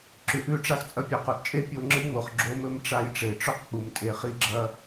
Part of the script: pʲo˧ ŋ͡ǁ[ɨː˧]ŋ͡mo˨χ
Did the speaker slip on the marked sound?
yes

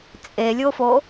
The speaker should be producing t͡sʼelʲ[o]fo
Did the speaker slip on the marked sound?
no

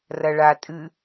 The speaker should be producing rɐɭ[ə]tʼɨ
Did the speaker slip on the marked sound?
yes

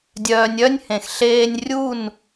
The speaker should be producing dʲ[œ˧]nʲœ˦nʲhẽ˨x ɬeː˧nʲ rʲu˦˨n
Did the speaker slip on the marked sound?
yes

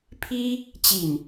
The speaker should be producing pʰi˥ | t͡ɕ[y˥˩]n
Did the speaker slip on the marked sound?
yes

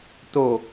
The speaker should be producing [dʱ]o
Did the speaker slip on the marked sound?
yes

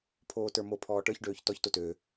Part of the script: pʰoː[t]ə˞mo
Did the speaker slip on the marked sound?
no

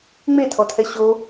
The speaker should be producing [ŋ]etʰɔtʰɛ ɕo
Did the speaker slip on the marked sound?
yes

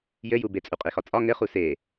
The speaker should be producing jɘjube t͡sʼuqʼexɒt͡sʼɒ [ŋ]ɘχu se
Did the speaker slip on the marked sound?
no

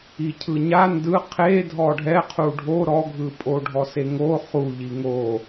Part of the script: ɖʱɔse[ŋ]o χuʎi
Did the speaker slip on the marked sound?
no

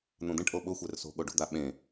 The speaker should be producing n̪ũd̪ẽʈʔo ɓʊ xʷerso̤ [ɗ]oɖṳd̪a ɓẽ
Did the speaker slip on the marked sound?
yes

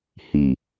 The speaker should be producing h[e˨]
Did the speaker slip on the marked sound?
yes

